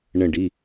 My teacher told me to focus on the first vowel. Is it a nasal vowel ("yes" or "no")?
yes